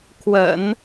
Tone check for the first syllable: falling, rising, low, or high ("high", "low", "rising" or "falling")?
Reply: low